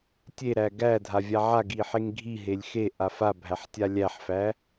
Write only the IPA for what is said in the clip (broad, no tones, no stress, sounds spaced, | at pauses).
tʲ e ɾ æ ɡ æ dʱ a vʲ a ʕ a ɡ i ħ e ŋ ɡʱ i ɦ e lʲ x e ʔ a f a bʱ æ ħ tʲ a lʲ æ ħ f æ